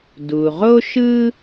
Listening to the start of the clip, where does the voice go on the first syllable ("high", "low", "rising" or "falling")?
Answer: low